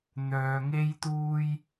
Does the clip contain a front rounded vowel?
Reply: yes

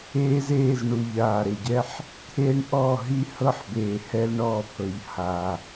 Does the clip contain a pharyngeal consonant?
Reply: yes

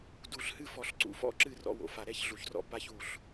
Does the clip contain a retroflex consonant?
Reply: no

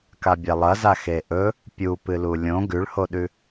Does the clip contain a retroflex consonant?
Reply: yes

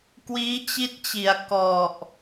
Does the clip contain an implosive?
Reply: no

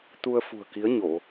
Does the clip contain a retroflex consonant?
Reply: no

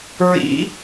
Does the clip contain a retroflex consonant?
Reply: no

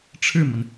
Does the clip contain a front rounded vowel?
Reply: no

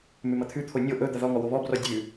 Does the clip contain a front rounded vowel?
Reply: no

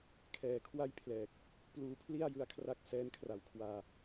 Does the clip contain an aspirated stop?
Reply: yes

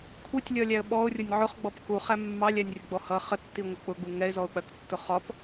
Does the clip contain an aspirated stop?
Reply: yes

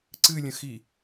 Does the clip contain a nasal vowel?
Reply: yes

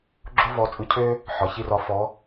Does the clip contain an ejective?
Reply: yes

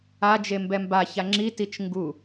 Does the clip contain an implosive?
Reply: no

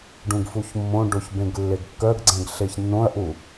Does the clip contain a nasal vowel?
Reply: yes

